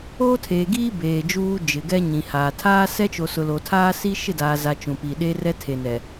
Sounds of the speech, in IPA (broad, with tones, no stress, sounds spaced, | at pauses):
oː˦ tʰ eː˨ ɡ iː˦ b eː˨ d͡ʒ uː˦ d͡ʒ ɪ˨ ɡ ɛ˦ ɲ ĩ˨ h aː˨ tʰ aː˦ s ɛ˦ t͡ʃ o˨ s ʊ˨ l o˨ tʰ aː˦ s i˦ ʃ ɪ˦˨ d aː˨ z a˨ t͡ʃ ũ˨ p i˨ ɗ e˦ r ɛ˦ tʰ e˨ n ɛ˨